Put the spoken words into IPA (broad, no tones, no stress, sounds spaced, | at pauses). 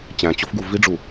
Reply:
t͡ɕ æ̃ t͡ɕ o f ɡ u v i ɖ͡ʐ u